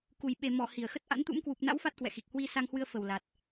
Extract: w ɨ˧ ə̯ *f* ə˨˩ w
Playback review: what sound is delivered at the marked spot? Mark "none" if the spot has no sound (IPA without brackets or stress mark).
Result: f